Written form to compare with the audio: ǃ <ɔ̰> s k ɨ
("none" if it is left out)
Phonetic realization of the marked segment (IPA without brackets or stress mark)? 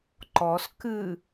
ɔ